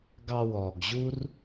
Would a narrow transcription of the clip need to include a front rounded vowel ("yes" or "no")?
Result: no